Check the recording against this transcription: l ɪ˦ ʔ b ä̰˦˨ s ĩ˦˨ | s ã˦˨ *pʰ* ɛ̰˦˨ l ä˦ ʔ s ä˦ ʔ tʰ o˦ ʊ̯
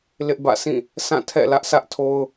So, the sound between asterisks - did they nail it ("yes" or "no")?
no